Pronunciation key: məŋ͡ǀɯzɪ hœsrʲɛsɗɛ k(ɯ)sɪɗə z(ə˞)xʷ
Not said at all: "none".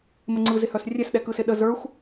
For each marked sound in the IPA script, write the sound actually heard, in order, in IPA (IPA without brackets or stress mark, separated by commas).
ɯ, ə˞